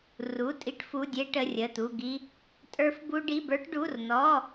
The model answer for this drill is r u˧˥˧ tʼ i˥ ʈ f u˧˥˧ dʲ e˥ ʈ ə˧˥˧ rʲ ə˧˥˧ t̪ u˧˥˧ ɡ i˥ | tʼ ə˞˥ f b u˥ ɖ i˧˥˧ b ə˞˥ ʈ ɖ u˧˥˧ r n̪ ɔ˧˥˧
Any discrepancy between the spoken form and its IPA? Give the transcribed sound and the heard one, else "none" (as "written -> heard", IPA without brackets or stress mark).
none